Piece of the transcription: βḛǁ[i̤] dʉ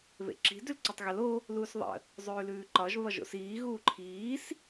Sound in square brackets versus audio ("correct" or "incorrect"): correct